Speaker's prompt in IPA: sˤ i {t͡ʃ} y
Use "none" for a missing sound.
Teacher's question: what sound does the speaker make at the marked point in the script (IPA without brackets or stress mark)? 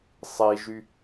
ʒ